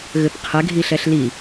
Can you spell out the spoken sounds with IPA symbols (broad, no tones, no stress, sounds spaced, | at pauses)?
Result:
ɣ ɘ p qʰ ɛ ɡʱ i ɬ ɛ ɬ l i